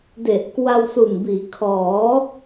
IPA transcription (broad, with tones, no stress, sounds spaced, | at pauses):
d e˨˩ ʔ k w a˧ w s u˨˩ n b iː˩˦ kʰ ɔː˩˦